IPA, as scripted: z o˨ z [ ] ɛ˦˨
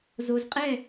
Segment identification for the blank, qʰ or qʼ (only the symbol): qʼ